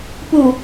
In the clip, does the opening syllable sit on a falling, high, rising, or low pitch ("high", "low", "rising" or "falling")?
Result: low